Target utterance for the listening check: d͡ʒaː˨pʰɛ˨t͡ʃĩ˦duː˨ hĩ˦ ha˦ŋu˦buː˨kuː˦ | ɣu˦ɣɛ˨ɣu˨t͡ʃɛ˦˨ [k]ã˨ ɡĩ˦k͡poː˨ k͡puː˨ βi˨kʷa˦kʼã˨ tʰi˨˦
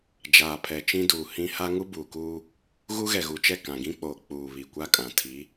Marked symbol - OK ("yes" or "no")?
yes